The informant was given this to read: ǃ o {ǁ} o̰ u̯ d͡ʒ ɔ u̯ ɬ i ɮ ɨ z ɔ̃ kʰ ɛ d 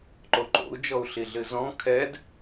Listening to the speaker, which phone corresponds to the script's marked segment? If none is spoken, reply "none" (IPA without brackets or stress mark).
ǃ